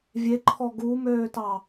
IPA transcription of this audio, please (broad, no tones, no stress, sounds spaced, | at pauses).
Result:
vʲ e ǃʰ ɔ ɡ u m øː t ɑ